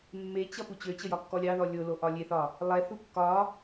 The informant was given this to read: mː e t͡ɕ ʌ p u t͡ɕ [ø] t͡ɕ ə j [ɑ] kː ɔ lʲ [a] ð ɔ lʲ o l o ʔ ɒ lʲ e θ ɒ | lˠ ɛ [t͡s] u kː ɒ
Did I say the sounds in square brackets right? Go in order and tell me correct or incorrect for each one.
correct, incorrect, incorrect, incorrect

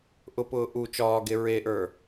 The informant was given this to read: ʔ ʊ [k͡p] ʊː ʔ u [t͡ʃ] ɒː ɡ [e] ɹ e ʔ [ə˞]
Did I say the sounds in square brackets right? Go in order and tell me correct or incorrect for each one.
incorrect, correct, correct, correct

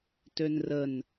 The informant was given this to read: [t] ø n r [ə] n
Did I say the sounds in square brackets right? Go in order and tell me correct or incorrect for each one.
correct, correct

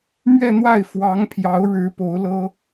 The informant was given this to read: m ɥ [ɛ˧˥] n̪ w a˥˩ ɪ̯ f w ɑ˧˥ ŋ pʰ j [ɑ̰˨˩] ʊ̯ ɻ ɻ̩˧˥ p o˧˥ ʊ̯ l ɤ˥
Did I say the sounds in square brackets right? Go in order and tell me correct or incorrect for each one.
incorrect, incorrect

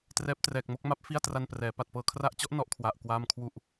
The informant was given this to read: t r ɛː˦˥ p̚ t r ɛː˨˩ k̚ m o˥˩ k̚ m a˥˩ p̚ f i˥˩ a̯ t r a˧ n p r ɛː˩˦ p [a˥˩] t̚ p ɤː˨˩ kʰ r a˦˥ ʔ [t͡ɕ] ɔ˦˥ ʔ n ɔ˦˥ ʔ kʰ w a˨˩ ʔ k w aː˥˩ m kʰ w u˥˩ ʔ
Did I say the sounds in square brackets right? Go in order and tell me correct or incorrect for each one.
incorrect, correct

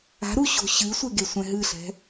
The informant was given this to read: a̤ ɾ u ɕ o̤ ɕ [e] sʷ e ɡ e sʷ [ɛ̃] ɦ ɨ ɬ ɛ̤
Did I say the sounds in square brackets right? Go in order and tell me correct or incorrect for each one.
incorrect, correct

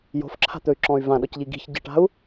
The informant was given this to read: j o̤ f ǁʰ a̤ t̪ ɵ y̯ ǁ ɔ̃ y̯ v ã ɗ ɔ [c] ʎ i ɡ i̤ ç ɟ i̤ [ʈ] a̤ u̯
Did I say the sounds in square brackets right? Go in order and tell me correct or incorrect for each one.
correct, correct

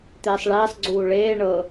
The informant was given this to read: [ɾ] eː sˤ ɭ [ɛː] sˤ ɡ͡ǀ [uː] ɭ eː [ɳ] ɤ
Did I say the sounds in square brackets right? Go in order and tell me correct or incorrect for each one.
incorrect, incorrect, correct, correct

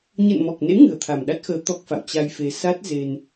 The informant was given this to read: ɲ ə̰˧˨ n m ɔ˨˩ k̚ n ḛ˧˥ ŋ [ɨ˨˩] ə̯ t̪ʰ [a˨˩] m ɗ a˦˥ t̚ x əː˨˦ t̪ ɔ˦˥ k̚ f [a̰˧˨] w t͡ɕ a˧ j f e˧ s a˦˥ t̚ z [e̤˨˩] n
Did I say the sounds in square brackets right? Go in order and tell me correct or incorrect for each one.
correct, correct, correct, incorrect

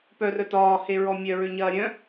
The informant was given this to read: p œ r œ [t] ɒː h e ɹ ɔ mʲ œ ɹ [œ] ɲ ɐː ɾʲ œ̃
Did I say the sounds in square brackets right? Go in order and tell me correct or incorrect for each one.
correct, incorrect

